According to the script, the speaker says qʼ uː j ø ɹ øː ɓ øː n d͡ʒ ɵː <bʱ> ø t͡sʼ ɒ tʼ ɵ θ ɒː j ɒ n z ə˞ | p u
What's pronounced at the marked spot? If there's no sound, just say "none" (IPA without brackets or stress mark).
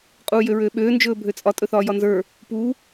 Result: bʱ